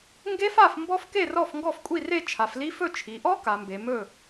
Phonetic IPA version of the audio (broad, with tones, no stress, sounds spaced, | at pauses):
ŋ ɡ e˦˥ f a˥˨ f m b ɔ˦˥ f k e˥˨ r ɔ˥˨ f ŋ ɡ ɔ˥˨ f kʷʼ i˥˨ r e˥˨ t͡ʃʰ a˩˧ f l i˦˥ f ɵ˥˨ t͡ʃʰ i˩˧ ʔ ɔ˦˥ k a˩˧ m b e˩˧ m ɵ˥˨